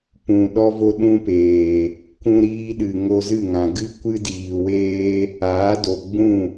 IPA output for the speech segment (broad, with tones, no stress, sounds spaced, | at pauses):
p ũ˨ ɗ ɔ˦ v o˦ ɗ ũ˦ p eː˨ | kʷ ũ˧ ɾ iː˧ ɗ ɨ˨ ŋ o˧ z ɨ˦˨ ŋ ã˨ ɡ ɨ˦ kʷ ɨ˦ d iː˨ w eː˦ | aː˨˦ d o˨ ɡ͡b ũ˦˨